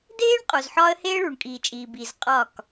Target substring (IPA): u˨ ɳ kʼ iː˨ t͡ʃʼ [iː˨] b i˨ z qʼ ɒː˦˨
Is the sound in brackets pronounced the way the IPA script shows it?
yes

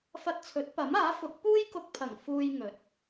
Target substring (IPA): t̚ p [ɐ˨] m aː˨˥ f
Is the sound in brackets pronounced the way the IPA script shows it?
no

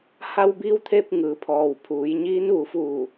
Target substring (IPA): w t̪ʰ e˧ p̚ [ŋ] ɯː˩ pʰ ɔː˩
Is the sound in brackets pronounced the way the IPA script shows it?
yes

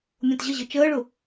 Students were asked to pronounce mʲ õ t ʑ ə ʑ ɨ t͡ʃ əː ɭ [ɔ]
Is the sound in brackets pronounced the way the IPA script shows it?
no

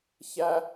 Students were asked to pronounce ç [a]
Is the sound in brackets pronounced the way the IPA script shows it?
no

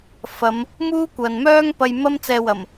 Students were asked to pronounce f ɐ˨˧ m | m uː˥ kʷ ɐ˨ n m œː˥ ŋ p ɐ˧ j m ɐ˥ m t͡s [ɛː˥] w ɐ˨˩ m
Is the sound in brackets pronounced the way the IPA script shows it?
no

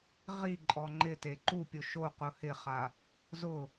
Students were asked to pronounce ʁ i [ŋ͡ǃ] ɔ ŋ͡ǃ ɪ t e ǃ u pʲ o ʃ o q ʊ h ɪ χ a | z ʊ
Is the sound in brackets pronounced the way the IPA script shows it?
no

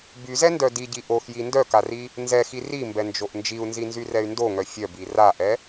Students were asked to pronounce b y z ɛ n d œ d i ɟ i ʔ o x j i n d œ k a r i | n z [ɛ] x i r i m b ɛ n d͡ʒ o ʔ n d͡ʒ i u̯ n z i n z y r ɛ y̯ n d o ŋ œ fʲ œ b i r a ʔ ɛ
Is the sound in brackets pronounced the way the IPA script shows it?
yes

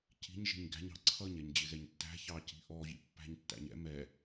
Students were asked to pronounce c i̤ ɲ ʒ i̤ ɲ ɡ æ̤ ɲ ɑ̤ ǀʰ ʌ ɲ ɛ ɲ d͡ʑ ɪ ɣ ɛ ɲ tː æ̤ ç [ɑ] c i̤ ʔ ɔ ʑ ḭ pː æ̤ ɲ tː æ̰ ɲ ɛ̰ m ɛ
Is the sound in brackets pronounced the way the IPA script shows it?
yes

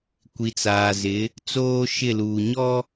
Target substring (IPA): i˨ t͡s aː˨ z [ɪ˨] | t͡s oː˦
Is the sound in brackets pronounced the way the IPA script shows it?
no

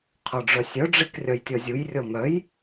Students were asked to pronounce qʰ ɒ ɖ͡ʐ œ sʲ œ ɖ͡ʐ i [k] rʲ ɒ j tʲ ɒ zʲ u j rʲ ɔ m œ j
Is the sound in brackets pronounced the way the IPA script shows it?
yes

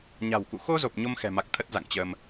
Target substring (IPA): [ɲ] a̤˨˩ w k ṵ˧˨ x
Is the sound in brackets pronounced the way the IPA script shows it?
yes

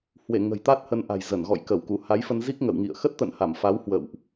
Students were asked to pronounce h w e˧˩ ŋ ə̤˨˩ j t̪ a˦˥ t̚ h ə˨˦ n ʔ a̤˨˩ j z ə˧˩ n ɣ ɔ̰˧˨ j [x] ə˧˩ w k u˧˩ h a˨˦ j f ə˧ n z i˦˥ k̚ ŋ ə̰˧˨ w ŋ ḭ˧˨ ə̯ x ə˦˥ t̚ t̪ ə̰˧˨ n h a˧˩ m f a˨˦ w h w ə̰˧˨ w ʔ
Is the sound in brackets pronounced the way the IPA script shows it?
no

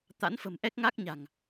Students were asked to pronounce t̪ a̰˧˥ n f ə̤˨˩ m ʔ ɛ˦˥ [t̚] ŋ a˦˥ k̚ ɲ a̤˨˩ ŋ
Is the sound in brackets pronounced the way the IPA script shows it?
no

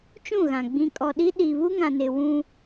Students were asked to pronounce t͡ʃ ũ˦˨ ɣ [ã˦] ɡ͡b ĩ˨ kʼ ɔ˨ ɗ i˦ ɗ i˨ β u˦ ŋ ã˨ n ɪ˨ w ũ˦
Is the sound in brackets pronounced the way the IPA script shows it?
no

